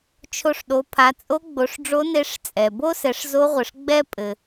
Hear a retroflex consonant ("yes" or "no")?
yes